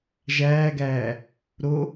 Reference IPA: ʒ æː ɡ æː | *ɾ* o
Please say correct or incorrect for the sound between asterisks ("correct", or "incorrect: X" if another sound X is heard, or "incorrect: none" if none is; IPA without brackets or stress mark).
correct